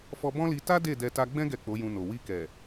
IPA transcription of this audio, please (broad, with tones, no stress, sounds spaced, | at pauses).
f ɔ˧ b ɔ̃˦ l i˧ t a˦ d e˦˨ d ɛ˧ t a˧ ɡ͡b ɛ̃˦ ɡ ɛ˦˨ k͡p o˨˦ j ũ˧ n o˨ w i˧ k ɛ˨